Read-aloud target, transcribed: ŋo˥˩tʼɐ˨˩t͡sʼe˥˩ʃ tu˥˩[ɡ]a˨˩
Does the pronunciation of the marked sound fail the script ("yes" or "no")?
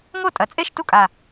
yes